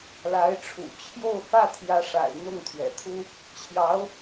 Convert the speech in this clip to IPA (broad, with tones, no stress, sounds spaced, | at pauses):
l a˧˥ ɪ̯ ʈ͡ʂʰ ṵ˨˩ t͡ɕʰ j o˥˧ ʊ̯ f ä˥˩ t̪ʰ j ä˧˥ ʂ a̰˨˩ ɪ̯ n̪ ʊ˥˩ ŋ t̪ʰ ɥ ɛ̰˨˩ t̪ʰ u˥ | t͡ɕʰ j ɑ˧˥ ʊ̯